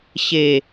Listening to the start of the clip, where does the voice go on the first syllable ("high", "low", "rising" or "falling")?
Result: falling